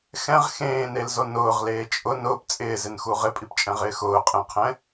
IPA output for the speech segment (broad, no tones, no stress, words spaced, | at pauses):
xɛ̃ʁ xẽːnelzo nʊːʁleː t͡ʃʼʊ nʊːp t͡sʼɪːzɪnxu ʁɪpʼipt͡ʃʼɛ̃ʁɪː xʊːqʼẽqʰɛ̃